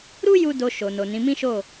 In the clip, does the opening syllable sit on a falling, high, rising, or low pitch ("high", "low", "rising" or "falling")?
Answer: high